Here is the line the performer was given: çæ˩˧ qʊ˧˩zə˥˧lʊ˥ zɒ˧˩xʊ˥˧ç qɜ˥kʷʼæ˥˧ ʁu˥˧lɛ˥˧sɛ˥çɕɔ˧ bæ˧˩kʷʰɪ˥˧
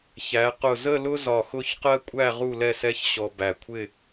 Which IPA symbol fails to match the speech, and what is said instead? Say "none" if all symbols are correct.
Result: none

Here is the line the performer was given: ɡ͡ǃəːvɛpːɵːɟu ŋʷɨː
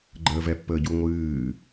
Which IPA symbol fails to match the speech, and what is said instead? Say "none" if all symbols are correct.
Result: ɵː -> əː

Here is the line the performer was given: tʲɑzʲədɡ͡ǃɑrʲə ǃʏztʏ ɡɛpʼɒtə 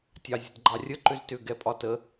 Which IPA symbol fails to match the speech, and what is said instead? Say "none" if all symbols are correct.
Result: none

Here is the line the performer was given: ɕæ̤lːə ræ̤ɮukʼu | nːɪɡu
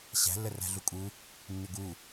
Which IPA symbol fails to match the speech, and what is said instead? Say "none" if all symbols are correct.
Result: none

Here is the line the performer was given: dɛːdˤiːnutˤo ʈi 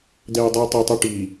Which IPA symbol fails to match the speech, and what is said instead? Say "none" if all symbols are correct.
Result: n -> tˤ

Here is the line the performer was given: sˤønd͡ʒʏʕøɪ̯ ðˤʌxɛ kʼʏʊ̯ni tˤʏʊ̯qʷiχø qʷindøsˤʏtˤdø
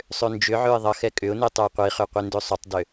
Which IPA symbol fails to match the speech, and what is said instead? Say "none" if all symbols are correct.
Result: none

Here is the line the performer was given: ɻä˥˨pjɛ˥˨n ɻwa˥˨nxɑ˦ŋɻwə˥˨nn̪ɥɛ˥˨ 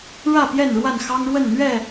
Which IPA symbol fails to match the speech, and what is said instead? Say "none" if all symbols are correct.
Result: none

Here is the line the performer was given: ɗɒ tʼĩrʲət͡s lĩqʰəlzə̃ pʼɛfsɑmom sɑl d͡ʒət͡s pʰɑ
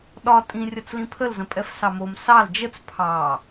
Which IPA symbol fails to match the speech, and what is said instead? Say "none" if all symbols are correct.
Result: qʰ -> pʰ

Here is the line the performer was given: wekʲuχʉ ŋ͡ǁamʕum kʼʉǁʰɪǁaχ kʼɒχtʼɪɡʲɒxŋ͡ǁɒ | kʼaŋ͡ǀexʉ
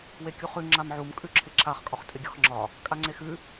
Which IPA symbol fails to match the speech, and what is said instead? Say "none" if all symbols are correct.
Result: none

